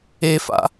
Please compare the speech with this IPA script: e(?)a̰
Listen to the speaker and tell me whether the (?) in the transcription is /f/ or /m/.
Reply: f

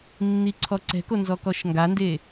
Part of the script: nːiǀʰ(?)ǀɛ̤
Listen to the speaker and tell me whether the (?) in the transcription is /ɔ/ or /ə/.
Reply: ɔ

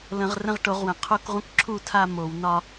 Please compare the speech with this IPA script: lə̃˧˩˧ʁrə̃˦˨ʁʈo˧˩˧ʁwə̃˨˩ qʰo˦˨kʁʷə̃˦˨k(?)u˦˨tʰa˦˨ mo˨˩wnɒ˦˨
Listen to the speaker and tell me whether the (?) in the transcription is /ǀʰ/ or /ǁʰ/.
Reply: ǁʰ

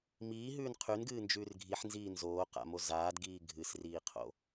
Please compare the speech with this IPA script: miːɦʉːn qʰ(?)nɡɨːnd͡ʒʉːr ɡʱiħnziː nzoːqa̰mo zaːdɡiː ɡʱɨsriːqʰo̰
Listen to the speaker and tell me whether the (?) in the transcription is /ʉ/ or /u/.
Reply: ʉ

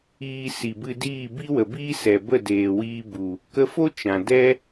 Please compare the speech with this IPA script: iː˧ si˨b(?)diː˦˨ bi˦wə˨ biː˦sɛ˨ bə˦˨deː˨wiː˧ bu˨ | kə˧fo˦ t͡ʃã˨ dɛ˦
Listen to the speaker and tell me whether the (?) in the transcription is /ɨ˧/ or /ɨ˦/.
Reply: ɨ˧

